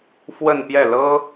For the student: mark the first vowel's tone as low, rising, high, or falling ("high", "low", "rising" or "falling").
falling